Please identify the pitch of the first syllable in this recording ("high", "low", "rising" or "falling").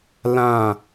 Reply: falling